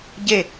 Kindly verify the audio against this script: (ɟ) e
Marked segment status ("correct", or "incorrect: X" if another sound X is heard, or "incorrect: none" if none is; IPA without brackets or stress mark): correct